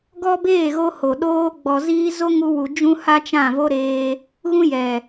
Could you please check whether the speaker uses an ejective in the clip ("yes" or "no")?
no